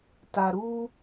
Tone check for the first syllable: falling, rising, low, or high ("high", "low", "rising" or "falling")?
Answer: low